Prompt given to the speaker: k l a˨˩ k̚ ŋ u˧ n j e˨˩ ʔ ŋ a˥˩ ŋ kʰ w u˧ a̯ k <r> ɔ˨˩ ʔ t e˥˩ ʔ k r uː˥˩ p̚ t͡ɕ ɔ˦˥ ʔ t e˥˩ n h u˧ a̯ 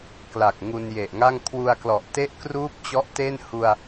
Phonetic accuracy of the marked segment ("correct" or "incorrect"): incorrect